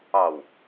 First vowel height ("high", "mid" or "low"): low